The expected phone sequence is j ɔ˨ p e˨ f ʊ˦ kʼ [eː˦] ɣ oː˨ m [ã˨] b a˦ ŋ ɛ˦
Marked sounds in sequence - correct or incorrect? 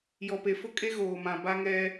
incorrect, correct

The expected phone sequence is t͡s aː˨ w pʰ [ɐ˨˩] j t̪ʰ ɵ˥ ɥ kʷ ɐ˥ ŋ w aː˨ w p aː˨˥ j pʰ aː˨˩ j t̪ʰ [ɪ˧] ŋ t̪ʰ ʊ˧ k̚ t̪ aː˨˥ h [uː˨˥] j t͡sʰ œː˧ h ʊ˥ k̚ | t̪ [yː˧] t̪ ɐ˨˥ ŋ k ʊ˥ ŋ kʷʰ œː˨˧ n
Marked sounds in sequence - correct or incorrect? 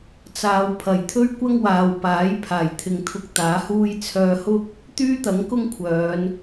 correct, incorrect, incorrect, incorrect

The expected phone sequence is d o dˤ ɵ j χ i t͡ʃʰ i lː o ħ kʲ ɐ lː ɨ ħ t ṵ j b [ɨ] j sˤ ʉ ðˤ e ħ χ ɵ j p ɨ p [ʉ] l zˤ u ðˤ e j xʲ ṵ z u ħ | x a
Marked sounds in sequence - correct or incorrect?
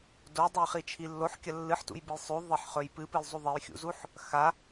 correct, incorrect

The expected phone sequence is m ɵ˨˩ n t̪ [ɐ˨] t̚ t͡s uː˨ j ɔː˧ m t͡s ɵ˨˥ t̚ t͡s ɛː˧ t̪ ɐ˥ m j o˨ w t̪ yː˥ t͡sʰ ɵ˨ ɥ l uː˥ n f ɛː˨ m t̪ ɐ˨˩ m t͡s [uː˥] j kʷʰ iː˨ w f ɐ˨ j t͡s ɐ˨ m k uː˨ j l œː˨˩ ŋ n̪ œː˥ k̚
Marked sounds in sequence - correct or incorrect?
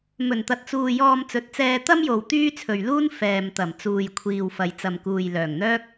correct, incorrect

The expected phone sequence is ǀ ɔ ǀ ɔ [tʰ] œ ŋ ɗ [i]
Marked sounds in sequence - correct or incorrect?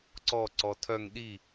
correct, correct

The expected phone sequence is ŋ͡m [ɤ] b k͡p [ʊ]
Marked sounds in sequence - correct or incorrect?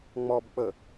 incorrect, incorrect

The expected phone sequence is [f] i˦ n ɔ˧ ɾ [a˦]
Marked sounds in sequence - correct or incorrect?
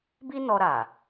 incorrect, incorrect

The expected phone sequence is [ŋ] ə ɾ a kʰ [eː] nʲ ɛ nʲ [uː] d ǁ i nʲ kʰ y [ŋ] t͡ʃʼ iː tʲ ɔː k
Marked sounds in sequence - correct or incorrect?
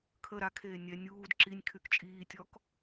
incorrect, correct, correct, incorrect

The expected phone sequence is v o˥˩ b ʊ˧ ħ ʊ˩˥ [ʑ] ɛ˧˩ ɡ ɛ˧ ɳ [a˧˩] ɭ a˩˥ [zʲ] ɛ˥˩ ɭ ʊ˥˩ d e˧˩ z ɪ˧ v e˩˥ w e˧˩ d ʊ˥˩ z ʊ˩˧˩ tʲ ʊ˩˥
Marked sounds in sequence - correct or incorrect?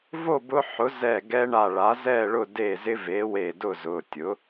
incorrect, correct, incorrect

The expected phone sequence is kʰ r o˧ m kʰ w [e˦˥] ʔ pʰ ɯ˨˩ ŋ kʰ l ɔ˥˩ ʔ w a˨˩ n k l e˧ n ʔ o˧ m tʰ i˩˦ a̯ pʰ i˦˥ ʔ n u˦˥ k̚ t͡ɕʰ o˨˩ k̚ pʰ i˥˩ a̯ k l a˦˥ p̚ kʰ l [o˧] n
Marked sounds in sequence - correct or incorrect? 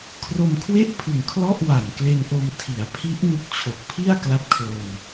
incorrect, correct

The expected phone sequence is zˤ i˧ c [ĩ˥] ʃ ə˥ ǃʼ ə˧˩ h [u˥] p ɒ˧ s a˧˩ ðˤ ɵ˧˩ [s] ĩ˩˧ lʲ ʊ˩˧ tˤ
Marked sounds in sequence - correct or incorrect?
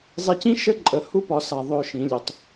correct, correct, incorrect

